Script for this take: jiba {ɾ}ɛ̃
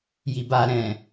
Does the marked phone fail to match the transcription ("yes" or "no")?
no